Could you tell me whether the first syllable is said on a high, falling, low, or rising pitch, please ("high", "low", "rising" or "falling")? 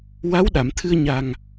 rising